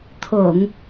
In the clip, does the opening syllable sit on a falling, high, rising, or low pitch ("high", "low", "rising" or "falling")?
low